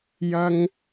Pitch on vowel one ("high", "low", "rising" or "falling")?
high